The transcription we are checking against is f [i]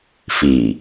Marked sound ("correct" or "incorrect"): correct